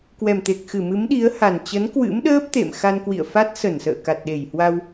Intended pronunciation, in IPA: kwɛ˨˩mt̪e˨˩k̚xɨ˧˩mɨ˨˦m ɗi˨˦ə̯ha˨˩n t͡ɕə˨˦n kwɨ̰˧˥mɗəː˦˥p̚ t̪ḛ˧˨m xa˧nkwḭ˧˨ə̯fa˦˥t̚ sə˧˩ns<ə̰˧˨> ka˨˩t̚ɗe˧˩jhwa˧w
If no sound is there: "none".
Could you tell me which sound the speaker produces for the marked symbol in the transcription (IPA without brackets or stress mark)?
ə̰ː˧˨